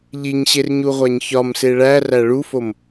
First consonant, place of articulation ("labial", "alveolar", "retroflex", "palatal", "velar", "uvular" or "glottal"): palatal